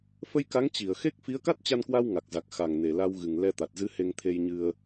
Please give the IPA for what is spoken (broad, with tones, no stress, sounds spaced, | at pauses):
f ə˧ j k a˨˦ ŋ t͡ɕ i˧˩ ə̯ x e˦˥ k̚ f i˨˦ ə̯ k a˦˥ t̚ t͡ɕ a˧ n k w a˧ w ŋ a˨˩ k̚ z a˨˩ k̚ x a˨˩ ŋ n e˨˩ l a˧ w ɣ ɨ˨˩ ŋ l ɛ˧ t̪ a˨˩ t̚ z ɨ˨˦ h e˧ ŋ t̪ʰ e˧ j ɲ ɨ˧ ə̯